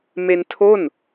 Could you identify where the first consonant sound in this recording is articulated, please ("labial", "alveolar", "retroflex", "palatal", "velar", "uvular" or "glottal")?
labial